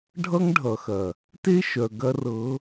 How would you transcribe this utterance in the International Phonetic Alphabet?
ɖʱʌ˦ŋɖʱʌ˨xɐ˨ | te˦ʃœ˨ ɡɐ˦rɤ˨˦

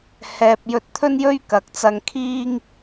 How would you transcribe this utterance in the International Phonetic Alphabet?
hɛː˨p̚ jɵ˧t̚t̪ʰɵ˥njɵ˥ɥ kɐ˨˥k̚t͡sɐ˧ŋ kʰiː˥ŋ

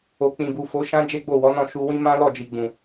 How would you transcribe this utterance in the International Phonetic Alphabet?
o˨ k͡pĩ˨bu˨ fo˨˦ʃã˦ d͡ʒe˦ɡ͡bo˦˨wɔ˨˦nɔ̃˦˨ ʃu˧wĩ˦ mã˦lɔ˦˨d͡ʒi˨ ɡ͡bũ˨

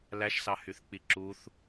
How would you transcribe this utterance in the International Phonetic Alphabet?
læʃsɑhyθk͡pi ǁuθ

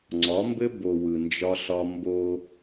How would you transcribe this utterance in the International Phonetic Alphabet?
ŋ͡ǀɒ˨˦mbɘ˦ bo˨ wɯ˨nd͡ʒɒ˦ɬɒ˦ mbo˦

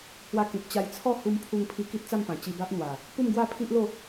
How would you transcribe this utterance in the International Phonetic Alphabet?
hwa˧ kĩ˨p̚t͡ɕa˧j t͡sʰɔ˥˧hu˧m pʰu˧ŋpʰi˧ ki˦t̚t͡sa˥˧mpã˨˩ t͡ɕi˧ba˦ʔn̪wa˨˩ | pu˥˧mɡwa˥˧pʰi˦ʔlo˥˧

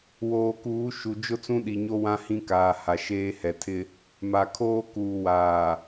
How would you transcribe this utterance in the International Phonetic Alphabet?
woː˨kuː˨˦ ʃu˨ d͡ʒʊ˦t͡sũ˦ɗi˨ɲo˦ wã˦ hĩ˦kaː˨ ha˨ʃeː˦hɛ˨tʰɪ˦ | ma˨ kʰoː˦ kuː˨waː˨

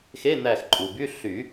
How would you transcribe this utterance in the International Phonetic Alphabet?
xe˧˥˧n̪æ˧˩xǃʼu˩by˧˥˧ ɬy˨˩˦

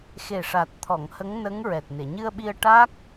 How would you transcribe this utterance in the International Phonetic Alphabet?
xe˨˩ʂa˨˩t̚t̪ʰɔ˨˩˨ŋ hə˧˥ŋnə˧˥ŋ ɹɛ˨˩t̚ne˨˩˨ ɲɨ˧ə̯ɓi˧ə̯ ʈa˦˥k̚

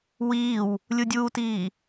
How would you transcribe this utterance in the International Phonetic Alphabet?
wiːw | lʲudʲuːtiː

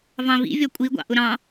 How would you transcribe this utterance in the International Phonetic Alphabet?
vɑ̃vḭ vʲɔkʷʼiɡʷɑ̰ ʔʊɾɑ̃

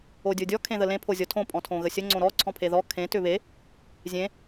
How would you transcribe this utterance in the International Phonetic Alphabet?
odʲodʲɔ kʰẽðəlẽ pʰozʲɔtʰõ pʼɔ̃tʰõɣəsʲə ŋ͡ǀõɾɔ ǀʰɔ̃pʰeðɔ kʰẽ tʏβe | zʲẽ

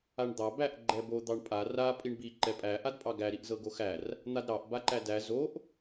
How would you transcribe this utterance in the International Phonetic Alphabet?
aɳd̪ɑ bæʔ ɡ͡ǃɛbo d̪ɑɳpʼa ra pʼiɳbi ǃɛpʼæ ʔadpʼɑɡæ ɾiʔzɤɡoxær | n̪adɾɑʔ baǃædæ zoʔ

